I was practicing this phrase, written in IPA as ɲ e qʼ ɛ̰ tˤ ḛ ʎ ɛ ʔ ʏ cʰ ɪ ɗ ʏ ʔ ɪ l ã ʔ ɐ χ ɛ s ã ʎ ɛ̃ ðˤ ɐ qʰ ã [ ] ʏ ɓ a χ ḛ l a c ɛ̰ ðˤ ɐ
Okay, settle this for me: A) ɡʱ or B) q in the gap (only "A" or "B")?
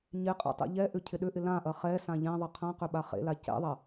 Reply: B